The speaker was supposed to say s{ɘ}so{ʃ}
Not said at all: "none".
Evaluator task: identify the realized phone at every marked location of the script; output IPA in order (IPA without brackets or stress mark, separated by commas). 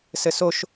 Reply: ɘ, ʃ